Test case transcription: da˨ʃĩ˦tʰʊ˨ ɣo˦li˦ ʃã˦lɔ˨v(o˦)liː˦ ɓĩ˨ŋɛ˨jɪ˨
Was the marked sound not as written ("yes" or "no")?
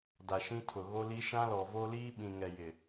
no